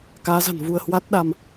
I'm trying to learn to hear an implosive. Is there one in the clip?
yes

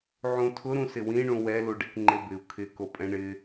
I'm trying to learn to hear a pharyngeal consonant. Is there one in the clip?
yes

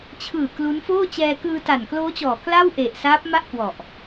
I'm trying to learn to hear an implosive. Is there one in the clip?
no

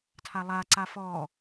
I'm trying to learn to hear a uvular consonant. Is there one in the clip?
no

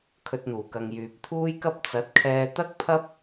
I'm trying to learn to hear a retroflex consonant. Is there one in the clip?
no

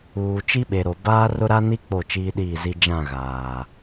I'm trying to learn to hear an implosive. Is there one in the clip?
yes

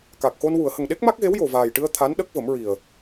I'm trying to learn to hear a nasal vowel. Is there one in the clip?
no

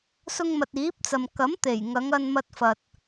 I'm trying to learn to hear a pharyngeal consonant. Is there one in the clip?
no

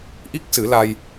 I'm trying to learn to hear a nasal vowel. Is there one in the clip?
no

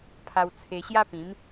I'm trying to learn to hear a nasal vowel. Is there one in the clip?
yes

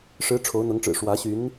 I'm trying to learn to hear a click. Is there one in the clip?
no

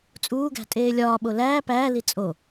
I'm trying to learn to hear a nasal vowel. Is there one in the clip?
no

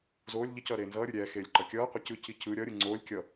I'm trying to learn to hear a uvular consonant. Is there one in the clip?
yes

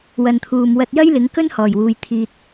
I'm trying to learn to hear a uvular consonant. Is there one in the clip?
no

